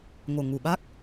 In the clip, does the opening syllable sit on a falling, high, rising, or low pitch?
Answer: low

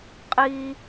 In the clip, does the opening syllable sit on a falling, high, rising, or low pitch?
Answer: high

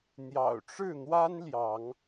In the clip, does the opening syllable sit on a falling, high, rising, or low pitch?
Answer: low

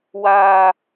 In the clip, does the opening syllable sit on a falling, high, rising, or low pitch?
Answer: low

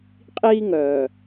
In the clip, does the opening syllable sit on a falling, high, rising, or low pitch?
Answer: high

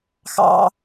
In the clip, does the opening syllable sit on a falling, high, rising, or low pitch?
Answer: high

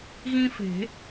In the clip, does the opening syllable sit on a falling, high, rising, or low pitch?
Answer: high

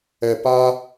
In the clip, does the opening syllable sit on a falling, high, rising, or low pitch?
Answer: low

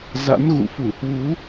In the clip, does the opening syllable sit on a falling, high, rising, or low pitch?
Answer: rising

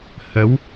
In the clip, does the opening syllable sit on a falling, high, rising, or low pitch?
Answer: rising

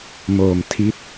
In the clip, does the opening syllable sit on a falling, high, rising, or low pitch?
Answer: low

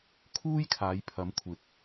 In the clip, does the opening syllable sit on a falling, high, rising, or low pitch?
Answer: high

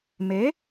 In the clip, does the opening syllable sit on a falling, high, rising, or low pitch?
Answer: rising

